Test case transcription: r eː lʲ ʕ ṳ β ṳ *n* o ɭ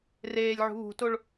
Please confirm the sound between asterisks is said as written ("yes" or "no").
no